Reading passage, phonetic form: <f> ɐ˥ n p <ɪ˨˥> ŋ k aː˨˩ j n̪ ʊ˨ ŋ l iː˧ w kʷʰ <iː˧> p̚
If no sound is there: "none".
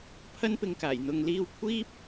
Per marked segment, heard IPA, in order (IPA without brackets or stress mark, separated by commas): pʰ, ɪ˧, iː˥